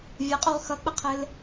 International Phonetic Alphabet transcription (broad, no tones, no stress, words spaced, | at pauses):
vʲʌqʼuʁ xʌk͡pəqʰɘl